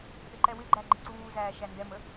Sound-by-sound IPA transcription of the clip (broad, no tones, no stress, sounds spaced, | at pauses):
ɗ ə ǃ ɛ w ɪ ɡ͡ǃ æ ɡ͡ǃ ɪ ǀ uː z æː ʃ æ n d ɛ m ə